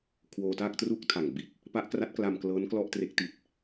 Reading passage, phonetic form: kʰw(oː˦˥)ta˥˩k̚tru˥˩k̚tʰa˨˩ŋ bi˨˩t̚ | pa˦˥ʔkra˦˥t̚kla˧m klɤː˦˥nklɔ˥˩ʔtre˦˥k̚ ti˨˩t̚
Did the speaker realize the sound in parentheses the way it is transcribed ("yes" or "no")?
no